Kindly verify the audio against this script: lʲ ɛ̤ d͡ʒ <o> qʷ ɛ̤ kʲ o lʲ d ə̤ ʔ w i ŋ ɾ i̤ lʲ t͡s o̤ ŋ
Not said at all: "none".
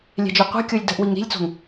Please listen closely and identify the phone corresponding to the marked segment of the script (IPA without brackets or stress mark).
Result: o